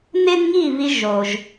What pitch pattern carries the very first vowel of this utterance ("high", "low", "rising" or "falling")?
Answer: high